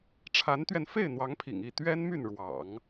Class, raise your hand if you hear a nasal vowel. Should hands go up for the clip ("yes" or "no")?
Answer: no